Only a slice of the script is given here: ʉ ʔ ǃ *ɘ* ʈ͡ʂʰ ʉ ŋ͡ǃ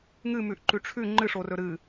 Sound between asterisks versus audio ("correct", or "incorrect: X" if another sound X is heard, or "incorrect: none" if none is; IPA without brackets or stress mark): incorrect: ʉ